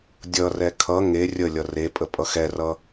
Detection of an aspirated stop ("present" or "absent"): present